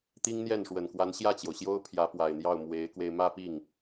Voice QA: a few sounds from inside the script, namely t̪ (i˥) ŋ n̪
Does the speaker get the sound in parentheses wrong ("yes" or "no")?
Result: no